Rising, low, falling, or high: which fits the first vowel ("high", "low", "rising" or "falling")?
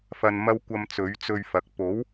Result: low